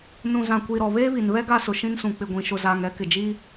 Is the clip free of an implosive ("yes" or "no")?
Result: yes